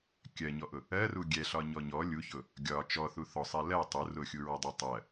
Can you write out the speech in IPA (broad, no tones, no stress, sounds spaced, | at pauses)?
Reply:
kʲ ɜ ɲ ɔ ʔ ʊ | ɜ r u ɡʲ ɛ ɬ ɒ ɲ ɔ ɲ ɔ lʲ u ç ʊ | ɡʲ ɒ t͡ʃ ɔ θ u θ ɔ sˤ ɛ l ɜ tˤ u r ʊ xʲ u ɹ ɔ dˤ u tˤ ɜ